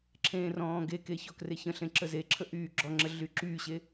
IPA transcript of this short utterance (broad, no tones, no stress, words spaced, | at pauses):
ǁʰẽːrɔ̃ːɡeke çɔkreçə̃ɬẽ ǁəzeǁʰə ʔyːɡ͡ǁɔŋ͡ǁə ɮyǁyɕe